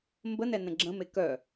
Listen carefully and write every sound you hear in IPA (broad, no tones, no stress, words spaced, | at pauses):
mbənɛnə̃ ɡ͡ǁə̃me kœ